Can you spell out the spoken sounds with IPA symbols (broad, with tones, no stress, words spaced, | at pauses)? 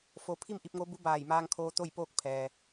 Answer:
fo˧ pʰi˥˨mʔi˧p̚ŋo˧˥bu˧˥ baː˧˩jmaː˧ŋkʰoː˧ t̪o˥˨j poː˥˨k̚ pʰɛː˩